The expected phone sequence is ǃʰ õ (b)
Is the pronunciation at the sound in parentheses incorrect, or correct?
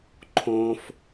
incorrect